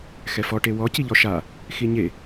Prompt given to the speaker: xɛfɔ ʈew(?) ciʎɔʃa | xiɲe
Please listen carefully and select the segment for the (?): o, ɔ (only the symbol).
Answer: ɔ